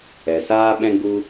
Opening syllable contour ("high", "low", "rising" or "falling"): low